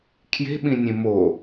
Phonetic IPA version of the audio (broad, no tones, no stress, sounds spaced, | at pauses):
kʰ j e̤ ɓ ĩ nʲ ẽ m o